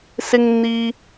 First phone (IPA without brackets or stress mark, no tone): s